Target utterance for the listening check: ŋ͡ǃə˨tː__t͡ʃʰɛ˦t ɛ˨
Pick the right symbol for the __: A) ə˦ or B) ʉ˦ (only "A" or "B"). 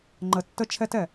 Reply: A